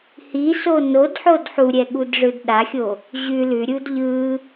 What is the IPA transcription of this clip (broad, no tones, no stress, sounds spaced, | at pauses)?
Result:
h i s o n o d ħ o d ħ u ɾʲ ɛ ɠ u d ʐ ɯ d ɗ a xʲ o | ʑ ʉ l ʉ ɾʲ u d ʎ ɯ